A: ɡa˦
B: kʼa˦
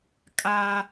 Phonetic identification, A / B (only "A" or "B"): B